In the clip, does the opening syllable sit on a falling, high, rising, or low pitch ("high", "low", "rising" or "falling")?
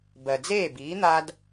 low